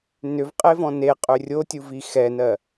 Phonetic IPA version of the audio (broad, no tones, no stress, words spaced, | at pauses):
nʏvqʼevɔ̃ neqʼʏ rʲotʲuvi xɛnɜ